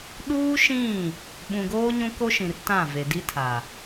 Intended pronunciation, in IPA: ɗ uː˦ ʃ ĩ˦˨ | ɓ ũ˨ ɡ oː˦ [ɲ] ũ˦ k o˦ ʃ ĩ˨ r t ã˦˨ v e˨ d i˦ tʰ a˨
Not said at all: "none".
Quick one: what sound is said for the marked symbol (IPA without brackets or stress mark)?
ɲ